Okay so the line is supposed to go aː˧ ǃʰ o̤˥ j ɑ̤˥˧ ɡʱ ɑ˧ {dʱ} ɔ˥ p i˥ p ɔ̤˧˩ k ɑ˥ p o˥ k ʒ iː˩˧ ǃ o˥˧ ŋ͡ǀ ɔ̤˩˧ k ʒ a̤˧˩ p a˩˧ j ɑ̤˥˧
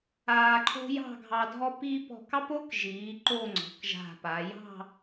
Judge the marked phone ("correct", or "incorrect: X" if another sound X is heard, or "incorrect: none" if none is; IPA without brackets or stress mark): correct